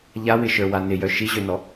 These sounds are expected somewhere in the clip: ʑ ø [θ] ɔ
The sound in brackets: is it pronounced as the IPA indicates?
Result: no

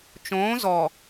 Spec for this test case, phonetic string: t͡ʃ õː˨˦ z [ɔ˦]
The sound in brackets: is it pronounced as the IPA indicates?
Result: no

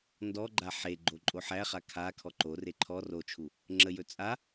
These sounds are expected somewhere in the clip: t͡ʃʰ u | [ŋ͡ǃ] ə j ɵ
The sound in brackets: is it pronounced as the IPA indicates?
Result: no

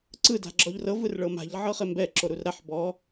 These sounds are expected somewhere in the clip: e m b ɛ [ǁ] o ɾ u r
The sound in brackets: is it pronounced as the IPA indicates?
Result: yes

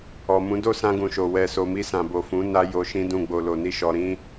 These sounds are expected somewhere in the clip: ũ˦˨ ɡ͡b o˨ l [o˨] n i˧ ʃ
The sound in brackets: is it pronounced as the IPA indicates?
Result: yes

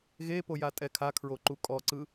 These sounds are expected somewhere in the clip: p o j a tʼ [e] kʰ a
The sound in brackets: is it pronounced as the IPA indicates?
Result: no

